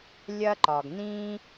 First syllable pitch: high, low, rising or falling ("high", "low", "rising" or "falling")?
high